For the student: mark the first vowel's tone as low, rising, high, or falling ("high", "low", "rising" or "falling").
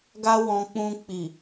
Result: high